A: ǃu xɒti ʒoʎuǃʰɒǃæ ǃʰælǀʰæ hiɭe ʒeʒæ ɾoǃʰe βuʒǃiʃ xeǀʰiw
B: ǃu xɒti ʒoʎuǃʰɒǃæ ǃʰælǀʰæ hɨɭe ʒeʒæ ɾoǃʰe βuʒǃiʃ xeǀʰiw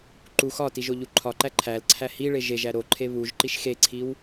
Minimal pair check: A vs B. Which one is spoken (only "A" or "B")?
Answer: A